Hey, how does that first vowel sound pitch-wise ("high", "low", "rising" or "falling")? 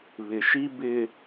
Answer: low